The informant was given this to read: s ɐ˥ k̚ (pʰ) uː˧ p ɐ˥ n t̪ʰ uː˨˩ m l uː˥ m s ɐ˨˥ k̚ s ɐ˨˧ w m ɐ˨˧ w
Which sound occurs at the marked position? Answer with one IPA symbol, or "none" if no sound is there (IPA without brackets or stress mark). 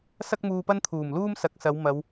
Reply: m